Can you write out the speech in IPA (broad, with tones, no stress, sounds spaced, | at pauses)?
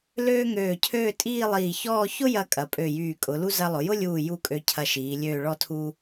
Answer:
l øː˥ ŋ øː˧˩ cʰ øː˥˧ tʼ iː˥˧ lˠ iː˧˩ ç ɔː˥˧ ç ʊ˥ j ɐ˧ kʼ ɐ˩˧ pʼ ø˧˩ j yː˧˩ kʼ ʊ˩˧ l u˥ z ɐ˧ lˠ ʊ˩˧ j ʊ˥ lʲ uː˧˩ j u˥˧ kʼ ø˧ cʰ ɐ˧ ʃ iː˩˧ lʲ øː˧˩ ɭ ɔ˧ tʰ u˧